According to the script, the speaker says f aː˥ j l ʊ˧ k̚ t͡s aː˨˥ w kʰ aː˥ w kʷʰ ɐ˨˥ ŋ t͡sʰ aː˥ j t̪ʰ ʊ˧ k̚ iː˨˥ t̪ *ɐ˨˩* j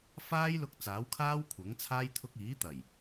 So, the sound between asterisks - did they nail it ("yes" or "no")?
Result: yes